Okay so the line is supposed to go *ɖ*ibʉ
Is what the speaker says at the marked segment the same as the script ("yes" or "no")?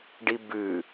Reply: yes